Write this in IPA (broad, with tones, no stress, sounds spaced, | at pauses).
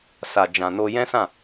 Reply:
s a˨ d͡ʒ ã˨ n o˧ j ɛ̃˦ s ã˦˨